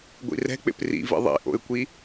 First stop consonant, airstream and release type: plain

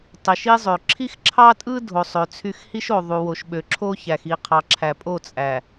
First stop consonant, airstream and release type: plain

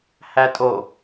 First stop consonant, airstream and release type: ejective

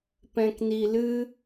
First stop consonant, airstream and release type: plain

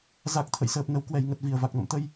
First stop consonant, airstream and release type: plain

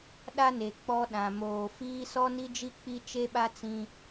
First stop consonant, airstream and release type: implosive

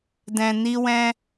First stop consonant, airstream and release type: plain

